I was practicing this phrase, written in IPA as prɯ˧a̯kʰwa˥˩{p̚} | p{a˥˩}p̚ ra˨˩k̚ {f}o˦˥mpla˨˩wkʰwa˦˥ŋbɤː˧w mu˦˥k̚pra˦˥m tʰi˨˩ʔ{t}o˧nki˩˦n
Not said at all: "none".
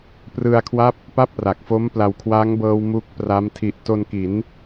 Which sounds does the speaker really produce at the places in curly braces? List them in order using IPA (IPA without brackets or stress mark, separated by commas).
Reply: p̚, a˥˩, f, t